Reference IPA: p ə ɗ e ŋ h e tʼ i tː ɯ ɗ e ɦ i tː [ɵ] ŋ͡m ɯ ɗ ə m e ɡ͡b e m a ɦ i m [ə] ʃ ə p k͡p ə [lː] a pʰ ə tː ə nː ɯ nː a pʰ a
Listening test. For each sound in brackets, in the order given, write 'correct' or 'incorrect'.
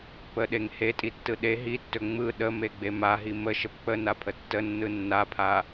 correct, correct, incorrect

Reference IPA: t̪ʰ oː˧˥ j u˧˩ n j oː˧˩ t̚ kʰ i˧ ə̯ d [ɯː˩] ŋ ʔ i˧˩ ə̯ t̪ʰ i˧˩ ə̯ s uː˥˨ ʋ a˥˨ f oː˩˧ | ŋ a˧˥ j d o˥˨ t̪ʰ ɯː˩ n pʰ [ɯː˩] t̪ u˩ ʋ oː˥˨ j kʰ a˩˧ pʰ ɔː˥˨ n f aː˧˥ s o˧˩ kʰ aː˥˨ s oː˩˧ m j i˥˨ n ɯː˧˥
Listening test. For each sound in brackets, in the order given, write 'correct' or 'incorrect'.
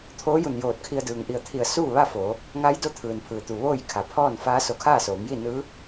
correct, correct

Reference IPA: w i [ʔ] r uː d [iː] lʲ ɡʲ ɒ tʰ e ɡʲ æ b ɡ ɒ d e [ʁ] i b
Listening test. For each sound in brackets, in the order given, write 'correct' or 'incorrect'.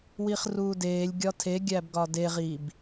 incorrect, incorrect, correct

